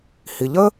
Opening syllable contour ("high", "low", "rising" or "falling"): low